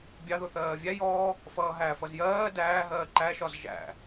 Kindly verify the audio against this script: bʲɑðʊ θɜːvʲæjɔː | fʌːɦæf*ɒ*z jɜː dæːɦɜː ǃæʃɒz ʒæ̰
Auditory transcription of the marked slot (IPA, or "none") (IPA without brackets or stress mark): ʌ